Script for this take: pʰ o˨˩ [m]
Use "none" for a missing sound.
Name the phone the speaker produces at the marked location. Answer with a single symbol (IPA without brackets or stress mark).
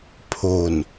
n